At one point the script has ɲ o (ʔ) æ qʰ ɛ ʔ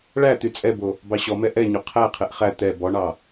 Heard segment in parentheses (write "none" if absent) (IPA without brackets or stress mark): qʰ